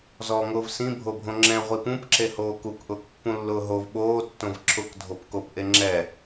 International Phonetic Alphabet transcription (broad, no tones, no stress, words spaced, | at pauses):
zɔːŋʊːvsĩ bʱobʱõŋ͡ǁɛ̃ ʁʷipũp ǁehoːkuk ʔʊːkpːũlːʊːɦov ɓoː tːõvǁʰʊk dʱopkop ʔeŋ͡ǁɛ